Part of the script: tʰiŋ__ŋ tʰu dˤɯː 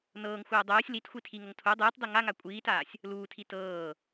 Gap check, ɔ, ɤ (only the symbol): ɤ